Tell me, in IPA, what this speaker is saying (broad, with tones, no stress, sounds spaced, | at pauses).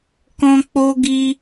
k ɔ̃˧ k͡p o˧ ɡ i˧